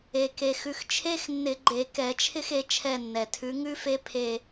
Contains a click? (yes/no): yes